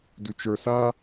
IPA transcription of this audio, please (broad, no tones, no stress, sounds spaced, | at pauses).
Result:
d ʉ t͡ʃ ə˞ s a